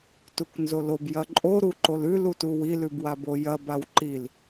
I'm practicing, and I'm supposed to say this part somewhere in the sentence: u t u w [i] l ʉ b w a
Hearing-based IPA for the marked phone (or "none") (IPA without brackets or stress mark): i